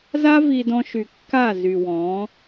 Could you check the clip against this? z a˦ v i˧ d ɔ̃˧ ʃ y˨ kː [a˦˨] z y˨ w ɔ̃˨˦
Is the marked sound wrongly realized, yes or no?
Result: no